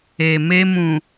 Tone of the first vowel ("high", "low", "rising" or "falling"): low